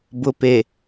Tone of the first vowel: low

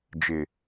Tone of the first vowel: low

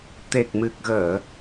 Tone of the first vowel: low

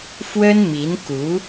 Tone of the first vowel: high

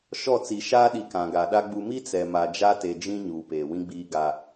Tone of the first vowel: falling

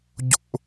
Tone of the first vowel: high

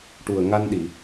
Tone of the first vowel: low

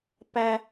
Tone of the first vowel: high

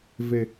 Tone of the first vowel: low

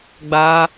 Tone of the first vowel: high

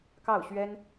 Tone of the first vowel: falling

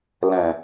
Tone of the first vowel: low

